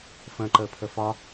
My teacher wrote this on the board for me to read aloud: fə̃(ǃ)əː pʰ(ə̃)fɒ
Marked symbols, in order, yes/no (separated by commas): yes, no